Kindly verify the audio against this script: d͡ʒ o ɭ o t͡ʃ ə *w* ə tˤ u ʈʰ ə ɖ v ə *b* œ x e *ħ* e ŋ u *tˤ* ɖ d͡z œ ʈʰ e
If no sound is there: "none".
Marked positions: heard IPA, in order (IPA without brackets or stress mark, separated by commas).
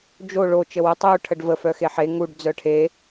w, f, ħ, none